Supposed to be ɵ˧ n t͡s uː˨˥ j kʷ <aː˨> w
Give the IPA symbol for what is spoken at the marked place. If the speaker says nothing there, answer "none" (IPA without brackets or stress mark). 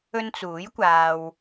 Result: aː˨